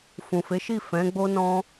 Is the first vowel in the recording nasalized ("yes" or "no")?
yes